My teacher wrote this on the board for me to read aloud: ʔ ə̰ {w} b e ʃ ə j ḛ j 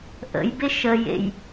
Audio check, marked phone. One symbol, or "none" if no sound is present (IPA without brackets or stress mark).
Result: j